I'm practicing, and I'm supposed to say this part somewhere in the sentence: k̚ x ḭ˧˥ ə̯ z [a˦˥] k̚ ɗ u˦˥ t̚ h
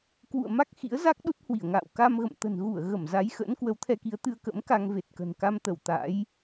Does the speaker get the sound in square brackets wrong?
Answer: no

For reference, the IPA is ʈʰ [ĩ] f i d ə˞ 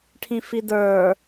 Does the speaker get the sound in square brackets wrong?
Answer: no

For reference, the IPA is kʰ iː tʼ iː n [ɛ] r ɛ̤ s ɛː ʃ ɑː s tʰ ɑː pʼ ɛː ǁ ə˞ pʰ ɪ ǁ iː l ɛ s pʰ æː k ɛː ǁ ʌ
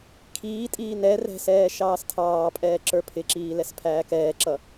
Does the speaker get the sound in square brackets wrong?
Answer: no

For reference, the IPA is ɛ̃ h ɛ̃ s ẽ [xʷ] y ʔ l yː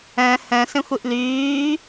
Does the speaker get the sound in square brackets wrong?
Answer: no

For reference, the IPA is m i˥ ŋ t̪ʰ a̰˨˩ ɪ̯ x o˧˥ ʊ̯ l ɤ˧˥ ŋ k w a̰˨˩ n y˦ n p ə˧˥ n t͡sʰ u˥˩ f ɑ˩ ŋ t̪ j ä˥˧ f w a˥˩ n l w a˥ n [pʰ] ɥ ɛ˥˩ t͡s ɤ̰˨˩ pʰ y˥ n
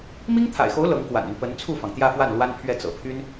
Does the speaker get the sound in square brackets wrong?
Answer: no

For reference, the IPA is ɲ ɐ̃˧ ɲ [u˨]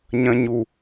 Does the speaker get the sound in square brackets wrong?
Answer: no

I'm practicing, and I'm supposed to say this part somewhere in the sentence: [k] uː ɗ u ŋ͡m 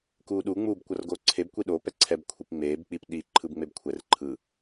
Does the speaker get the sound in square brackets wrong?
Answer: no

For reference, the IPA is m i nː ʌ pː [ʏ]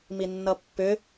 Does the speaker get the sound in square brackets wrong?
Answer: no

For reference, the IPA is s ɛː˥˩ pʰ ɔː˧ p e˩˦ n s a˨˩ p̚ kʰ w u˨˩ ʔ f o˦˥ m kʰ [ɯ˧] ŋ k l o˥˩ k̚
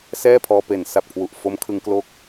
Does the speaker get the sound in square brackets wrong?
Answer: no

